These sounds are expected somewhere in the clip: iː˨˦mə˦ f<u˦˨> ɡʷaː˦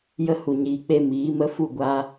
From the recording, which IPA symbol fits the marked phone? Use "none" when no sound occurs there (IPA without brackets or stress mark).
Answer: u˦˨